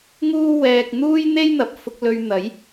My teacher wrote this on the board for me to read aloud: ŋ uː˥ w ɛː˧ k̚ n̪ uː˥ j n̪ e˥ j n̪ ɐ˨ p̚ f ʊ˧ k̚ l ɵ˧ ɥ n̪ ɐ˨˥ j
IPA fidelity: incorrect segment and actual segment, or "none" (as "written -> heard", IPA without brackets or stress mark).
none